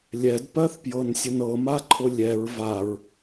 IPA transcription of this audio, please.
lʲ ɛ d p ɜ θ p j ɤ n sʲ ə n ɤ m a ǃʰ ʊ lʲ ɛ ɹ v a ɹ

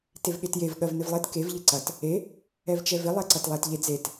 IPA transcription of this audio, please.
t e v ɠ e t j e v ɠ ɜ v n ɪ v lˠ e t k e v ʎ ɪ ǀ ɐ t | e | ɛ v t͡ʃ ɛ v ɪ lˠ ɛ ǀ ɐ t lˠ ɛ t ʎ e d͡z e t

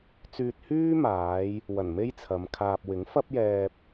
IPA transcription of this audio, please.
t͡s yː˧ t̚ h yː˥ m aː˨˧ j | w ɐ˨˩ n m e˥ j t͡sʰ ɐ˨˧ m kʰ aː˧ p̚ w ɪ˨˥ ŋ f ɐ˥ p̚ j ɛː˧ p̚

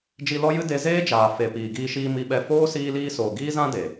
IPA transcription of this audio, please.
d͡ʒ i˧ l ɔ˦ j ɨ˦ d e˧ z eː˦ d͡ʒ aː˨ f e˨ p iː˨ ɡ iː˧ ʃ iː˧ m i˧ ɓ ɛ˧ f oː˦ s iː˧ l iː˧ s oː˨ ɡ iː˦ z ã˦ d e˨

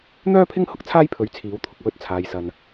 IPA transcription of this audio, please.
n̪ œː˥ pʰ ɪ˥ ŋ h ʊ˥ k̚ t͡sʰ aː˥ j pʰ ɵ˨˥ ɥ t͡sʰ iː˨˧ w t̪ʰ ʊ˨ k̚ w ɵ˧ t̚ t͡sʰ aː˨ j s ɐ˨ n

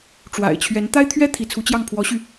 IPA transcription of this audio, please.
ʈ͡ʂ w a̰˨˩ ɪ̯ t͡ɕʰ ɥ ɛ˧˥ n t̪ a˥ ɪ̯ t̪ʰ ɥ ɛ˥ t̪ʰ i˧˥ t͡sʰ u˧˥ t͡ɕ j ɑ˥˩ ŋ pʰ w ɔ˧˥ ɕ y˧

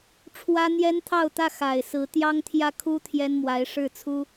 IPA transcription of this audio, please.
ʈ͡ʂʰ w ä˥ n̪ j ɛ˥ n t̪ʰ ɑ˥˧ ʊ̯ t̪ ä˥˩ x a˨˩ ɪ̯ s ɹ̩˧˥ t̪ j ɑ˥ ŋ t̪ʰ j ä˥˩ kʰ u˥ t̪ʰ j ɛ˥ n m w a˧˥ ɪ̯ ʂ ɻ̩˥˩ t͡sʰ u˥

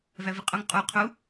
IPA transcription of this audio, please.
v æ v i qʼ o ŋ qʼ u qʰ u

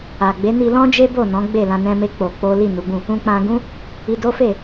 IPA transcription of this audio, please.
a˨ ɡ͡b e˨˦ n i˧ l ɔ̃˦ d͡ʒ e˦ b o˦˨ n ɔ̃˨˦ ɡ͡b e˦˨ l ã˧ n ɛ̃˦ m e˦ k͡p o˧ k͡p o˦ l i˦˨ n u˨˦ ɡ͡b ũ˦˨ | ũ˧ k͡p ã˧ ɡ ũ˦ | i˧ d o˦ f e˦˨

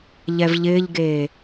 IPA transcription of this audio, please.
ʎ ɛ v ʎ ɪː ʎ ɡ eː

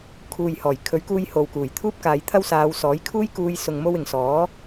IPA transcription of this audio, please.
kʰ uː˨ j h ɔː˨˩ j kʰ ɵ˨˥ ɥ k uː˧ j h o˨ w k uː˨˩ j t̪ʰ uː˥ p̚ k aː˨˧ j t̪ʰ ɐ˥ w s aː˨˧ w s ɔː˨˥ j kʰ uː˥ j k uː˧ j s ʊ˨ ŋ m o˧ w ɪ˨ ŋ s ɔː˨˥

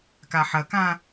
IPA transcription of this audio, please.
k a ħ ɐ k ã

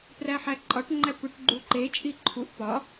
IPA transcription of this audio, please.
p r æ ħ æ ǃʼ ɒ ʈ ŋ͡ǃ æ p u ʈ ɡ͡ǃ u ǃ e t͡ʃʼ i ǃʰ u ʔ p ɒ

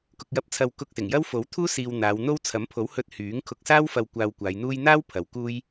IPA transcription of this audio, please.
k ʊ˧ k̚ j ɐ˧ p̚ t͡sʰ ɐ˧ w k ʊ˧ k̚ s ɪ˨˩ ŋ j ɐ˥ w f o˨˥ w t̪ʰ uː˥ s iː˨ w n̪ aː˨˧ w n̪ o˥ w t͡sʰ ɐ˨˥ m pʰ o˨˥ w h ɵ˧ t̚ h yː˨˥ ŋ kʰ ʊ˧ k̚ s aː˥ w f ɐ˧ w kʷ aː˧ w kʷ aː˨˧ j n̪ uː˥ j n̪ aː˥ w pʰ ɐ˨˧ w k uː˥ j

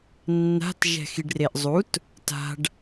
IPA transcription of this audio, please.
nː a̤ t ʒ ɛ̤ x i ɖ r e ʔ zˤ u t | t a̤ ɖ

